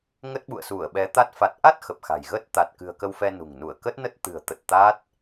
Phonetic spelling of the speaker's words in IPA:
ŋə˦˥t̚ɓṵ˧˨ə̯su˧˩ə̯ɓɛ˨˦ t̪a˦˥t̚ fa˨˩t̚ʔa˦˥t̚ xə˨˩p̚xa̤˨˩jɣə˦˥t̚ t̪a˨˩t̚ kɨ̤˨˩ə̯kə˧w fɛ˧nṳ˨˩ŋnu˧˩ə̯ kə˦˥t̚nə˦˥t̚ t̪ɨ̤˨˩ə̯t̪ə˨˩t̚ t̪a˦˥t̚

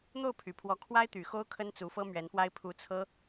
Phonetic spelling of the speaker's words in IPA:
n̪o˥˩ʊ̯pʰy˨˩pʰwɔ˧˥ kʰwa˥ɪ̯t̪y˨˩ xo˥ʊ̯kʰə˥n t͡su˧˥fɤ˥mɥɛ˧˥nfwa˥ɪ̯ pʰu˧˥t͡sʰɤ˥

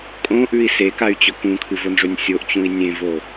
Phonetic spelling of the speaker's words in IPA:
kʼõʔʉi̯ sekay̯t͡ɕɵ kũkʰɨvonʐɵnʲ sʲoʔt͡ɕũi̯ nʲẽvo

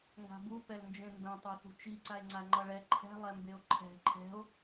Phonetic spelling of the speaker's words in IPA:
ŋɡa̤bu pɛlnd͡ʒẽmbɛ̃ tˤoθṳt͡ʃi ǀae̯ŋ͡ǀaŋ͡ǃʌɭɛ ǃʰɛ̤ lˠɛmbeo̯ǃʰɛ̤ ǃʰɛ̤o̯

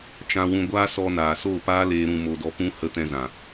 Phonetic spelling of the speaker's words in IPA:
t͡ʃã˧wũ˧ ɡʷaː˦sɔ˧naː˨so˦˨ paː˦leː˧ ɾũ˧mo˧dɔ˧pũ˦ hə˧tɛ̃˧zã˨

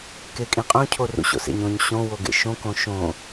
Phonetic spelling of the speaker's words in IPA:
kekʼĩqʼõ cʰorṵɕo̰sḛɲ õɲ ɕõ woɡḛʃõ kõʃõ

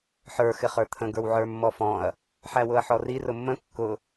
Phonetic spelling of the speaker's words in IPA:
ħə˞ xɪχə˞t̪ʰə̃ ɡə˞wʕə˞mːɔfɔ̃ɐ̯ | ħæwʊɐ̯ħɔri rʊmːə̃ kːʊ

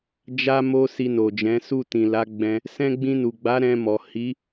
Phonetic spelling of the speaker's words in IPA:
d͡ʒa˦mo˦ si˧no˨d͡ʒɛ̃˨˦ su˦˨tĩ˨la˨˦ɡ͡bɛ̃˧ | sɛ̃˦ ɡ͡bĩ˧nu˨ɡ͡ba˨˦ ɾɛ̃˧mɔ˨ hi˨˦

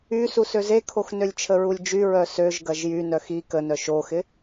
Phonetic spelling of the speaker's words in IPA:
y susøzekʰox nølʲt͡ʃʰəɹulʲd͡ʒy ɹœsøʒ ɡɐʒjy nœxi kənœ ʃoxɪ

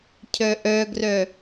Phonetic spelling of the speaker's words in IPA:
cʰœʔœɡrœ

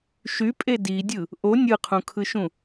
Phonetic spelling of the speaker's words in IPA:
ʃypʼe didʲɯ | ʔo nʲɯqʰũkʰɯʃũ

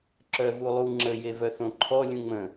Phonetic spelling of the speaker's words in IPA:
ǁœvulˠu ŋ͡ǁə jevœθõǃʰɔ lʲũŋ͡mə̃

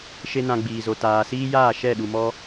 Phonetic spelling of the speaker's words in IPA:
ʃe˦nã˧ɡ͡biː˨zo˨ taː˨siː˦jaː˦˨ ʃɛ˦˨ɗu˨mɔ˦

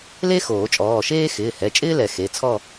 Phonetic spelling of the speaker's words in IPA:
le˥xoː˨˩˦t͡ʃʼɔː˩˧˩ʃeː˥ xɪː˩˧˩hɛ˩˧˩ t͡ʃʼɪː˥lɛ˨˩˦ xe˩˧˩t͡sʰɔ˥˧

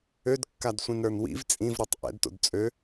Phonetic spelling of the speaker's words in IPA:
ødkːadsʷĩnɾə˞n wḭv t͡sʼĩvɾotˤ ʔɛ̰dto̰d t͡sʼø

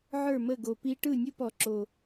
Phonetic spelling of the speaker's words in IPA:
ʕə˞˦˨mə˦˨ɡo˨ pi˦ ʈɯ˦˨nʲu˦pɔ˨ǁo˨

